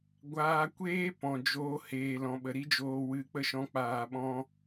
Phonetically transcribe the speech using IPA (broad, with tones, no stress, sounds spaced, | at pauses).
ɡʷ aː˧ kʷ eː˦ p ɔ̃˨ d͡ʒ oː˧ h eː˨ l ɔ̃˨ ɓ ə˨ ɾ i˦ d͡ʒ oː˧ w ɨ˨ k͡p ə˦ ʃ ɔ̃˧ k͡p aː˨ ɓ ɔ̃˧